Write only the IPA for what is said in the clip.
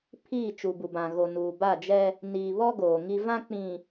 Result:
pʰiː˦˨ t͡ʃu˨bu˨bã˨ ɣo˨nuː˨ ba˦˨d͡ʒɛ˦ | niː˨βɔ˦ ɡoː˨ŋi˦ vã˦k͡pĩ˨

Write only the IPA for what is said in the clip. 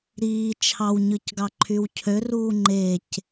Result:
ɾiː t͡ʃʰɑwɲɯcɡɑǃʰyw cʰøruː ŋ͡ǃec

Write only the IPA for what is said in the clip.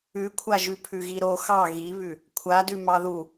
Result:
ʉkʷʰaʒʉ pʰʉɣiɾo xɑ ɣiβʉ | kʷʰadʉ mɑðu

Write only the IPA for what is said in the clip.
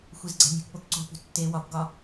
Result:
xʷezɡ͡ǀæ̤nʲṳkpok ǀo̤pṳ tːe wɒbɡɒ

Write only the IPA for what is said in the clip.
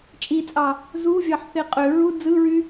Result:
t͡ʃʼit͡sʼɑ | zuvʲɑħθe qʼø ɹu d͡zɯɹy

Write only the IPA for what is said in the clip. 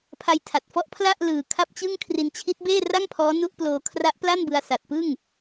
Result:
pʰa˧jtʰa˨˩t̚fɔ˦˥ʔ pʰla˥˩ʔ lɯː˨˩ kʰa˥˩p̚t͡ɕɯ˥˩ŋ kʰri˧nt͡ɕʰi˦˥t̚beː˥˩ ra˥˩ŋpʰɔː˦˥ nu˦˥ʔploː˧ kʰra˦˥ʔpla˥˩nbɯ˧a̯ sa˨˩t̚pɯ˥˩ŋ

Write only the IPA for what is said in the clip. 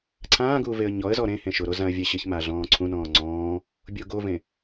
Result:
ǀʰãːɡuː veə̯ɲɔə̯zɔ ɾẽ hẽʃʊɾo zãə̯vʲɛɕɪçma ɮɔ̃ːǀʰũnɔ̃ː ŋ͡ǀɔ̃ː | bʲoɡovẽ

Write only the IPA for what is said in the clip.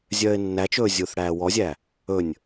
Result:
zʲœːɪ̯nːæt͡ʃɵː zʲuːθɽæːwɔzʲæ | ɵnʲ

